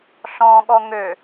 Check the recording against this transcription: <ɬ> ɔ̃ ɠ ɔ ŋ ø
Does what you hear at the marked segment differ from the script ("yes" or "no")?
no